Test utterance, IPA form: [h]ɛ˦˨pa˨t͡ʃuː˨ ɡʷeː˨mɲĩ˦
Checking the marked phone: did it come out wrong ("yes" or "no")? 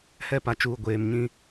no